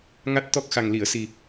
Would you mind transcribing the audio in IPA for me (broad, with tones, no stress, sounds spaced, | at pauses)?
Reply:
ŋ a˦˥ t̚ t̪ ɔ˦˥ k̚ x a˨˩ ŋ l i˨˩˨ ə̯ s i˨˩